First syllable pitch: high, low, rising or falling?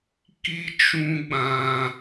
high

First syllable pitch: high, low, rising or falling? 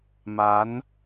rising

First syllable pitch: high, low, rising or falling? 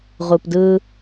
low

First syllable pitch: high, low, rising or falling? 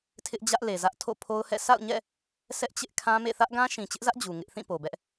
high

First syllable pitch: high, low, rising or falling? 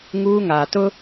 high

